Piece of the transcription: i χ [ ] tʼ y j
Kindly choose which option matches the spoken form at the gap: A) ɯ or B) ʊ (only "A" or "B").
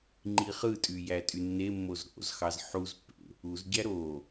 A